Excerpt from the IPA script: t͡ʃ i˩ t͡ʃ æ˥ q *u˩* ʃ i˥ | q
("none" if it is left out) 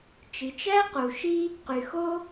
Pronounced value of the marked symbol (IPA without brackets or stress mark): u˩